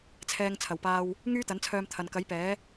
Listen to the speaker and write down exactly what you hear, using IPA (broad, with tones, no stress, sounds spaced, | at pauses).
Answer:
t͡sʰ ɛː˧ ŋ t͡sʰ ɐ˨˩ w p aː˧ w | ŋ yː˥ t̪ ɐ˨˥ n t͡sʰ œː˧ m t̪ʰ ɐ˨ n k ɐ˨˥ j p ɛː˨˥